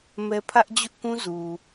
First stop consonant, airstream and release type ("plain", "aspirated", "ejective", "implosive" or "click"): aspirated